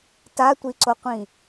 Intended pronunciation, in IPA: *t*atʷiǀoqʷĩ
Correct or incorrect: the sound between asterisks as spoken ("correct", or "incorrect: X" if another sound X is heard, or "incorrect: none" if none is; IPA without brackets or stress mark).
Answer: correct